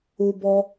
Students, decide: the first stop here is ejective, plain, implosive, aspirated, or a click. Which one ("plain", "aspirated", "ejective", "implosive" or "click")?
plain